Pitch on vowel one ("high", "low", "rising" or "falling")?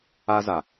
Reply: high